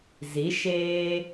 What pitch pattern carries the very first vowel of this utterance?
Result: rising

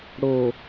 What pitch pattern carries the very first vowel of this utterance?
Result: low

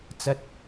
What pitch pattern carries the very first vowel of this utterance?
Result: low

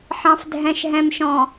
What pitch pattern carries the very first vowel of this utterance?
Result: low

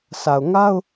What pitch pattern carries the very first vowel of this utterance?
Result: low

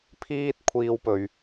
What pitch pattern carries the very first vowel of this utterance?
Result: high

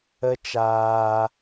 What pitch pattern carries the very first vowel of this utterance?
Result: high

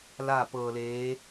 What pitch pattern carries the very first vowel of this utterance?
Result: falling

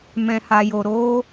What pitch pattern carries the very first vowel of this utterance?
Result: low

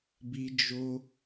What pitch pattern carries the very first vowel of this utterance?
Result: high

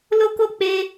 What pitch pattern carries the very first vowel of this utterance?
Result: high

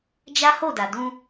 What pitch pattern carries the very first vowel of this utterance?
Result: high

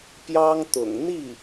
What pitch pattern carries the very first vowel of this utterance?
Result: high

